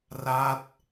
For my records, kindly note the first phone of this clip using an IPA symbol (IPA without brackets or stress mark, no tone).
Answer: r